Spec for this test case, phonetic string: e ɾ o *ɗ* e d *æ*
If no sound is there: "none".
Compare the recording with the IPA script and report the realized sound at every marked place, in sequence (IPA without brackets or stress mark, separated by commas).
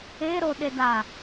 ɗ, a